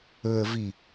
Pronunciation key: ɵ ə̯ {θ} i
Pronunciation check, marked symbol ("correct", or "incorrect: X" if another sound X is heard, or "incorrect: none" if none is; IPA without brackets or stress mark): incorrect: v